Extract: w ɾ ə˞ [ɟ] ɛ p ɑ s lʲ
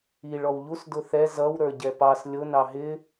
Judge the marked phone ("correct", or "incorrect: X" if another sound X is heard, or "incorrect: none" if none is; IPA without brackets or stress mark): correct